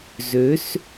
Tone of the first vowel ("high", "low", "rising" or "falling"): rising